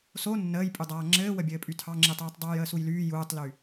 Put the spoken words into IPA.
s o nː əː j pʼ y dˤ aː ŋ͡ǁ ɘː w ə bʲ ɘː pʼ y tʰ ɑ ŋ͡ǁ i tˤ yː tˤ dˤ uː j əː s u j l yː j uː tˤ l y

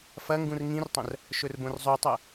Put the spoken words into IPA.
f ɐ ŋ ɡ ũ r ŋ ĩ r tˤ ɐ̃ r | ʃ ɵ r b õ r zˤ ʉ tˤ ɐ

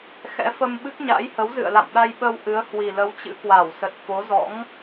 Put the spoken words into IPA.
x ɛ̰˧˥ f ə˧ m ɓ ɨ˦˥ k̚ ɲ a̰˧˥ j h ə˨˦ w z ɨ̰˧˨ ə̯ l a̰˧˨ m ɗ a˧ j ɓ ə˧ w ʔ ɨ˨˦ ə̯ h w i˨˩ l ə˨˦ w t͡ɕ ɨ̰˧˥ k w a˧˩ w s ə˨˩ t̚ f o˨˦ z ɔ̰˧˥ ŋ

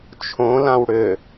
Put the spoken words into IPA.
t͡ʃʰ õ l ã w ɽ ʏ

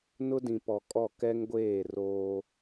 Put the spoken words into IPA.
n ʊ˦ d ĩ˨ p ɔ˨ kʼ ɔ˦˨ k ɛ˦ ŋ ɡʷ eː˦˨ r oː˦

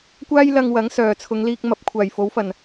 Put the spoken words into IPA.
kʷ aː˥ j l ɐ˧ ŋ w ɐ˨˥ ŋ s œː˨˩ t͡sʰ ʊ˨˧ ŋ l iː˧ k̚ m ɐ˨˥ p̚ kʷʰ aː˨˩ j f o˨˥ w f ɐ˨˩ n

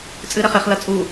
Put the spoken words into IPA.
t͡sʼ ɨ ɾ ɛ χ e χ l ɐ t͡sʼ u

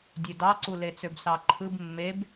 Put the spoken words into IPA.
dʲ ø d ɑ ǀ u l e t͡s ø b s ɑ ǃʰ ɯ b mː e b

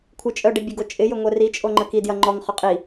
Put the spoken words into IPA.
kʷʰ ɪ t͡ʃʼ œ ɖ ɛ bʲ ʊ ɡ o t͡ʃʼ ɪ j ʏ ŋʷ ɛ r i t͡ʃʼ o ŋ͡ǃ ə k i d j ɐ ŋ͡ǃ ɔ ŋ χ ʏ qʼ i

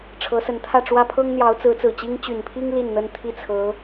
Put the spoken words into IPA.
ʈ͡ʂʰ ɤ˧˥ s ə˧˥ n t̪ʰ ä˥˩ ʈ͡ʂ w ä˥ pʰ ɤ˥ ŋ n̪ j ɑ˧˥ ʊ̯ t͡s ɹ̩˧˥ t͡s ɹ̩˨˩ t͡ɕ i˥ ŋ t͡ɕ y˨˩ n pʰ i˥ ŋ l i˥˩ n n̪ ə˥ n t̪ʰ i˥˩ t͡sʰ ɤ˧˥

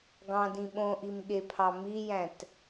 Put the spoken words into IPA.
ɡ ɑ̃ d ĩ ɓ õ ʔ i m ɠ e pʰ ɑ m i j æ̃ t

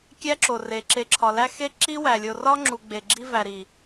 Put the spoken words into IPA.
kʲ æ˦ ǁ o˨ r e˨ ǁ e˨ ǁʰ ɒ˨ l æ˦ x e˦ ǁ i˦ w æ˨ lʲ o˨ r ɒ˦ ŋ͡ǁ u˨ ɡ͡b e˨ ɡ͡ǁ i˦ v æ˨ ɾ i˨

